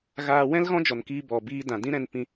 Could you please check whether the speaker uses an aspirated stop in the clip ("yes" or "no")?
no